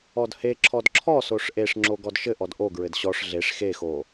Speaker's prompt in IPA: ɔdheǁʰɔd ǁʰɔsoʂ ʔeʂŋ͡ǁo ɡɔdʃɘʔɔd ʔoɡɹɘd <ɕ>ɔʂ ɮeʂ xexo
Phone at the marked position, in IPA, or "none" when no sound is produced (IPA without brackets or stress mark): ɕ